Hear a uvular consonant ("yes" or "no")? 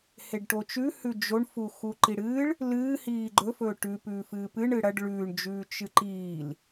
no